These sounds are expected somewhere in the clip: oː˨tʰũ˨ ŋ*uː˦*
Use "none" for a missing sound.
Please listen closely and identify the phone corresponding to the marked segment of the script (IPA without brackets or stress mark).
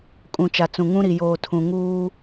uː˦